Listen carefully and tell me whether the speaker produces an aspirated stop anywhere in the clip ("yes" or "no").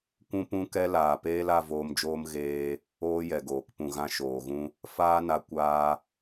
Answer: no